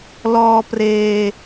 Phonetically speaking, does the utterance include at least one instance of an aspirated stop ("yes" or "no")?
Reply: no